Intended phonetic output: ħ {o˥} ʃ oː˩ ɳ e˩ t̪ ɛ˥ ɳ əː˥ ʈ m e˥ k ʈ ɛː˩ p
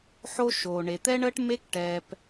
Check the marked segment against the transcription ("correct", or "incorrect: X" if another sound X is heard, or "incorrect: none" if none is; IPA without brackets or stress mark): correct